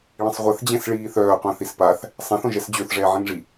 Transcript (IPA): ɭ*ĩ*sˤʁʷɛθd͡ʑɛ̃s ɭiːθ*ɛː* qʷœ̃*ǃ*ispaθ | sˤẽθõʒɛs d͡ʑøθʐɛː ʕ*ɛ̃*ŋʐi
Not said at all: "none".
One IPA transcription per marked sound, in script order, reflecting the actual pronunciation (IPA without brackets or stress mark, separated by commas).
ĩ, œː, θ, ẽ